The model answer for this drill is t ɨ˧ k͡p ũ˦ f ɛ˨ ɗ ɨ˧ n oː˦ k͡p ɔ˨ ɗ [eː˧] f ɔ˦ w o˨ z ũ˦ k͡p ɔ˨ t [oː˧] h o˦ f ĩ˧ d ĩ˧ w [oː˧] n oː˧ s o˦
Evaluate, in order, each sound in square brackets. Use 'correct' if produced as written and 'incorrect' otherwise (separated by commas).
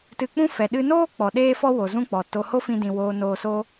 incorrect, incorrect, correct